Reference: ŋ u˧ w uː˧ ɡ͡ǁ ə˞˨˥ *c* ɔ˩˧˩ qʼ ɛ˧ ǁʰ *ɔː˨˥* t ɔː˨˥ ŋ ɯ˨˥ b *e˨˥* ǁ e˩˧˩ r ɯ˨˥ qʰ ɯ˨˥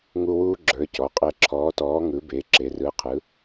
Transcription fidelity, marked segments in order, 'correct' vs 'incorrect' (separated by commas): correct, correct, correct